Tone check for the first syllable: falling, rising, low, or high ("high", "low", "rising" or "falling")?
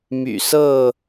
low